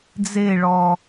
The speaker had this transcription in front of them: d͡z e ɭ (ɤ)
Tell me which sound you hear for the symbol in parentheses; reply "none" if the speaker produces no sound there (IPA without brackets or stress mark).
ɔ